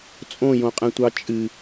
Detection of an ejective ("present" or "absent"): present